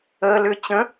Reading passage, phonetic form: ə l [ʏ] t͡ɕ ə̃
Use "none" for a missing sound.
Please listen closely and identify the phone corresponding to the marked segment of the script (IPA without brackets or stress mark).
ʏ